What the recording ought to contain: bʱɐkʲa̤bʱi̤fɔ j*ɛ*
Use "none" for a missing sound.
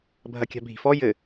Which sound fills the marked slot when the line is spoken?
ɘ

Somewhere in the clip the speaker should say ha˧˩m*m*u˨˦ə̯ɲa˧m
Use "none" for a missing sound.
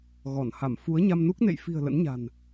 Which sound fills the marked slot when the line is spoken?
f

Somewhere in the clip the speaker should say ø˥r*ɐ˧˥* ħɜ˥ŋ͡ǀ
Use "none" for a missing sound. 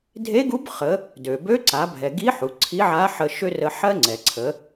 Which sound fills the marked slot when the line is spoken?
ə˧˥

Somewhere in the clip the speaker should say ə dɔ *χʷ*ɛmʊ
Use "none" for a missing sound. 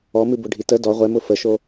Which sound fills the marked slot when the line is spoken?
ʁʷ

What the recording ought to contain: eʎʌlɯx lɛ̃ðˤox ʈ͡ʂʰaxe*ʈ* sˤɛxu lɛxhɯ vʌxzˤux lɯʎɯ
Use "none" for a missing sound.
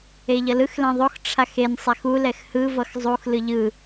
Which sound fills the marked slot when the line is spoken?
n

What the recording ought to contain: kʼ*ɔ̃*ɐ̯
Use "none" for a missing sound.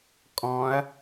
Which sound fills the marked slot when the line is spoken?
ɔ̃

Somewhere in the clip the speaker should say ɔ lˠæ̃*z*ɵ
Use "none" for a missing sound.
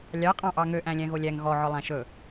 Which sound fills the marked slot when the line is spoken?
ʃ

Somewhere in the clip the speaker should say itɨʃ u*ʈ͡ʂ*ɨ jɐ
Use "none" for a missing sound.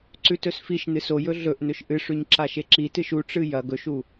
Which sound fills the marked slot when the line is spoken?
ʈ͡ʂ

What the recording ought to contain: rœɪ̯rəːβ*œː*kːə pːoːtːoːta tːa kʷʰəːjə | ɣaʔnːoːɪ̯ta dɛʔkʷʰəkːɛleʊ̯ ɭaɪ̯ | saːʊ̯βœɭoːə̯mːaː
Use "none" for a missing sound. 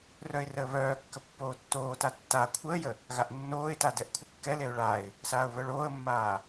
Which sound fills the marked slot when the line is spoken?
œː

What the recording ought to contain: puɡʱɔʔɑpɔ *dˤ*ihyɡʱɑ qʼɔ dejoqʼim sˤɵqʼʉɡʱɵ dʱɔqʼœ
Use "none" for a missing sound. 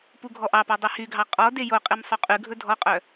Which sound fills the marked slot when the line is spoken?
dˤ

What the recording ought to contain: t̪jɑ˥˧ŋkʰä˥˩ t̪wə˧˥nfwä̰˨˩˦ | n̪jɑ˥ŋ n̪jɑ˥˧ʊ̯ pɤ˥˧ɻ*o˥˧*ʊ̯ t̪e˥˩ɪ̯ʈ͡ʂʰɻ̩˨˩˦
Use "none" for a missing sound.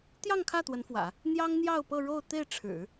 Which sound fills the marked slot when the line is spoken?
o˥˧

